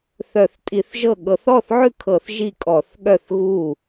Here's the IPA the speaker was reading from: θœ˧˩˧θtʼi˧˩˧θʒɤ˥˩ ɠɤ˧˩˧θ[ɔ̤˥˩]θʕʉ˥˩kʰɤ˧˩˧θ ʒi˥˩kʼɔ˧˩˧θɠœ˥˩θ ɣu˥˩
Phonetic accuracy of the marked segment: incorrect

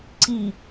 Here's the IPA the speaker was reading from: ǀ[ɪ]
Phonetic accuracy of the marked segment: incorrect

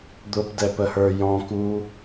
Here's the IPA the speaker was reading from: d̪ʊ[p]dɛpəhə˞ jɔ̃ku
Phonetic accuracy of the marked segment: correct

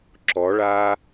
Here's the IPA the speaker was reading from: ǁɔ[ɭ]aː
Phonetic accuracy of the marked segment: correct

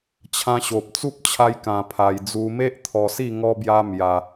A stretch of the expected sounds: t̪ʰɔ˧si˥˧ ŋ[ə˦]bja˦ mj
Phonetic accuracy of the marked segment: incorrect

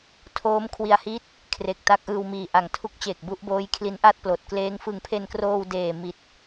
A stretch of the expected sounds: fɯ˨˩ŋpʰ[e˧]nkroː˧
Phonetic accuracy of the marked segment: correct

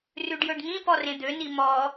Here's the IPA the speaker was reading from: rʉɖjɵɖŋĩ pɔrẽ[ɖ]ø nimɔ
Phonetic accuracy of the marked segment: incorrect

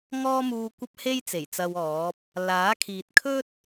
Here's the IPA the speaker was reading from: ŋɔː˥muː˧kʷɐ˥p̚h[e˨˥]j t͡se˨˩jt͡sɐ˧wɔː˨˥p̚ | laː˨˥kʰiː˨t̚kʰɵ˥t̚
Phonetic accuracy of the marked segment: incorrect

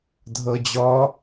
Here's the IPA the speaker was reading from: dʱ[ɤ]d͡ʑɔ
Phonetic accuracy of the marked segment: correct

